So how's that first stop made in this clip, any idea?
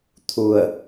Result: aspirated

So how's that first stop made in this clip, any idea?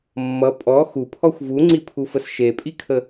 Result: ejective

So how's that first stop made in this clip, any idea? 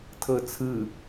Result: aspirated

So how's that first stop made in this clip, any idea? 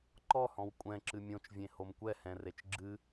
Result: click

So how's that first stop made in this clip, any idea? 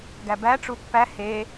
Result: plain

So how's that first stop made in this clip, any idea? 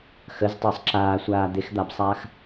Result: plain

